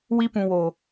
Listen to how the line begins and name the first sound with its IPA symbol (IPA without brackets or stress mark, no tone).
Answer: w